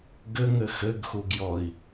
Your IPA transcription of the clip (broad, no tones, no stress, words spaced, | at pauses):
ɡɘŋɘ xɘɡxuɡjɔi̯